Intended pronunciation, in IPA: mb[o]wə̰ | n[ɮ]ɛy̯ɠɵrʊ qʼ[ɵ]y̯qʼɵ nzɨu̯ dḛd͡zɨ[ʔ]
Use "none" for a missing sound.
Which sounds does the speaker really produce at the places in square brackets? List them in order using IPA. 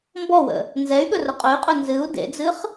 ɔ, z, ɵ, χ

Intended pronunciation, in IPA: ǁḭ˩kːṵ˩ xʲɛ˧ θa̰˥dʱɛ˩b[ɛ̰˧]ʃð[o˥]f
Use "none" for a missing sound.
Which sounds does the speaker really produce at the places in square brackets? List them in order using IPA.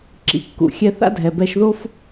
ɛ˧, o˥

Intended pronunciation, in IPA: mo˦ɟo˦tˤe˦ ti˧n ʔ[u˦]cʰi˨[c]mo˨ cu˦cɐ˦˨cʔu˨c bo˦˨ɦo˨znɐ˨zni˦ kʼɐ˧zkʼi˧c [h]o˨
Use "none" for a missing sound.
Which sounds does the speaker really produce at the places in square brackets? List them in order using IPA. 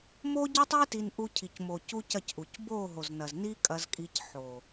u˧, c, ħ

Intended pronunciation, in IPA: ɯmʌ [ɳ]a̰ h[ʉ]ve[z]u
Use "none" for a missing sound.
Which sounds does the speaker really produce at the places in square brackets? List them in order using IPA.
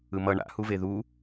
ɳ, u, ð

